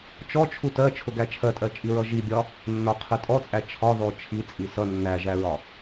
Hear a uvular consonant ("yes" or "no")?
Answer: yes